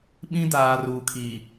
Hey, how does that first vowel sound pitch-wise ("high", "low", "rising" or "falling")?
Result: high